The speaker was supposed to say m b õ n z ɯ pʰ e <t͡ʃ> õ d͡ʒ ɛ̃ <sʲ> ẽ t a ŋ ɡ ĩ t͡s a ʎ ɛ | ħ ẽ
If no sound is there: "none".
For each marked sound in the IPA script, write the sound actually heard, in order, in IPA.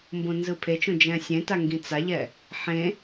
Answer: t͡ʃ, sʲ

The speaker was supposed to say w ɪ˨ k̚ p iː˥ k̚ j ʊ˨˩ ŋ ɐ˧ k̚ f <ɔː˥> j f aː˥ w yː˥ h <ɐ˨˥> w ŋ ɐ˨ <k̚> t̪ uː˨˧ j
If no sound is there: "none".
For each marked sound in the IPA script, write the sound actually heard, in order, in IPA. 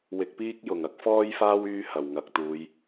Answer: ɔː˥, ɐ˨˩, k̚

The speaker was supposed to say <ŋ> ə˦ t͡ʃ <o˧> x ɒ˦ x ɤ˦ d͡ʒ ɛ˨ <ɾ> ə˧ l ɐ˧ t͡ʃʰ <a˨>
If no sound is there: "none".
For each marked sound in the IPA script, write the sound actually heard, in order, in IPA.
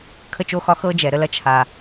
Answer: kʰ, o˦, ɾ, a˨

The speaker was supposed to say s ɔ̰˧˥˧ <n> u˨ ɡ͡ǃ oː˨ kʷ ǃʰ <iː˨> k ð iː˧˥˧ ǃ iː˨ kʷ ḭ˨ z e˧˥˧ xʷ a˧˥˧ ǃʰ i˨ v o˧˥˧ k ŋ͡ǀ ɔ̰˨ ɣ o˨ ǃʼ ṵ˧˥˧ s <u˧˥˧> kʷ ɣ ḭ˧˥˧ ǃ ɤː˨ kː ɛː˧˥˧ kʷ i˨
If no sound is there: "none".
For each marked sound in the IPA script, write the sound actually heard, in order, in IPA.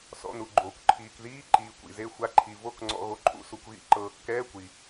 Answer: n, iː˨, u˨

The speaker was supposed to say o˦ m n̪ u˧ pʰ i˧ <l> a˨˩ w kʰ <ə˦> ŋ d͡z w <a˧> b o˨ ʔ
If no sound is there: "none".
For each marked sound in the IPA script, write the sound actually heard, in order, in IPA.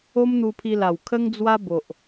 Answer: l, ə˦, a˦

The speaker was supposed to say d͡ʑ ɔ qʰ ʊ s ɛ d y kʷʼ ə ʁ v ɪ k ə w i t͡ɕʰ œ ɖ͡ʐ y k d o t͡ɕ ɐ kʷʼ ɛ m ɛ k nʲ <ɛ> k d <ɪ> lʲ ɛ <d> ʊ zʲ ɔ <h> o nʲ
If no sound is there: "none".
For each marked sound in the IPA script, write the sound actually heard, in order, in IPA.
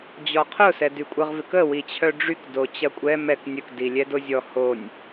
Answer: ə, i, d, h

